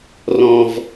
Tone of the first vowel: low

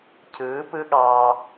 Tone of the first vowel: rising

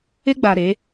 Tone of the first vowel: high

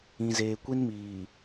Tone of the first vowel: low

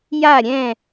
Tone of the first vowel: falling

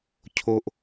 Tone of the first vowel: low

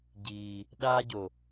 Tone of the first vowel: low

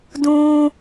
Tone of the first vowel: high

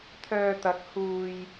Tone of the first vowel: low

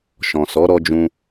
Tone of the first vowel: low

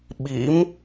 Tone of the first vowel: rising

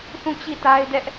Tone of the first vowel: falling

